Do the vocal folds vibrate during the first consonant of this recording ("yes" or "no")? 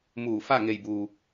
yes